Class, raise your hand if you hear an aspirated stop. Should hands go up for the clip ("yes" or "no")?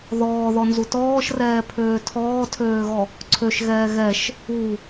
yes